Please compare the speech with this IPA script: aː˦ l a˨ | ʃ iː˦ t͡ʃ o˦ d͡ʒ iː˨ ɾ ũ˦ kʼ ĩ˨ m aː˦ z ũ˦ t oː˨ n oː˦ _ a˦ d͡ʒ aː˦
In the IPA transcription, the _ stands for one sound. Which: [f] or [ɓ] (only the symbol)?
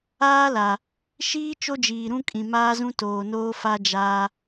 f